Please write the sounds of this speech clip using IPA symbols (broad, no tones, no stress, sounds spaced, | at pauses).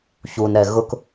ç u n ɾ ɛ ɣ ʊ k